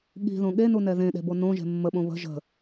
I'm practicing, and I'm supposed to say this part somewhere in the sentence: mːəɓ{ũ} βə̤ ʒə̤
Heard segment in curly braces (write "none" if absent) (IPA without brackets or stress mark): õ